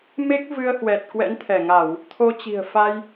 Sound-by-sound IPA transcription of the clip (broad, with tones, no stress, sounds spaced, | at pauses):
m e˦˥ k̚ v ɨ˧ ə̯ h w ɛ˨˩ t̚ k w ɛ̰˧˥ n t̪ʰ ɛ˧˩ ŋ a˧˩˨ w | t̪ʰ o˧ t͡ɕ i̤˨˩ ə̯ f a˧ j